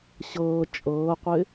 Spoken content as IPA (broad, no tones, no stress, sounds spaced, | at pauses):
ɕ ɤː t͡ʃʼ ɤː qʷ ɪ